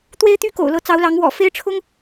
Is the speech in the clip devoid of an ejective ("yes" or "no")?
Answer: yes